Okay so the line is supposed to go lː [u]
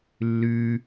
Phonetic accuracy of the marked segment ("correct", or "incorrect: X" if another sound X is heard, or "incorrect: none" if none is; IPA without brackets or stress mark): incorrect: ʉ